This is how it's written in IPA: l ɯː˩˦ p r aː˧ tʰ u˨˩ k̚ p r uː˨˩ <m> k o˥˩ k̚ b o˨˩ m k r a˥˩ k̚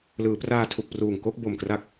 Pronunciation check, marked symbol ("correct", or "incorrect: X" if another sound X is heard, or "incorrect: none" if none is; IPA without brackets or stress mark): incorrect: ŋ